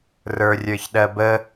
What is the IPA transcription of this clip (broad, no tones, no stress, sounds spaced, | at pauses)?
r ə˞ rʲ ə˞ ç ɗ ɜ b ə